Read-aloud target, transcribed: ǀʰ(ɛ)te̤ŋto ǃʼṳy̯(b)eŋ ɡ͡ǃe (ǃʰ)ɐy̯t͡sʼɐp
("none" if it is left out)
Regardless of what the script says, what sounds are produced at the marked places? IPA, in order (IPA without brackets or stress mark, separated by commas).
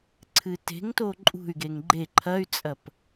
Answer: ɨ, ɡ, ǃʰ